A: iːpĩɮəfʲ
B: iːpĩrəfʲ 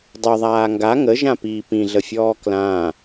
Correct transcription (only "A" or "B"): A